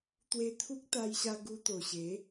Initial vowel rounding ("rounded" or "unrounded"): unrounded